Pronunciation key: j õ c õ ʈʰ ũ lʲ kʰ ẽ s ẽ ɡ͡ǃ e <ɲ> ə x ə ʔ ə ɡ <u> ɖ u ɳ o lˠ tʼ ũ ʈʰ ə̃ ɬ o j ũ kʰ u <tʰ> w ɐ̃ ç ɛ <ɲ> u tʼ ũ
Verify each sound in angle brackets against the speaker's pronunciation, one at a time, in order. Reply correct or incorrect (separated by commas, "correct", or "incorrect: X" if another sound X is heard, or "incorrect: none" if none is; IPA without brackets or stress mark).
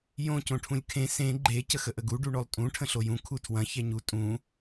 incorrect: c, correct, correct, correct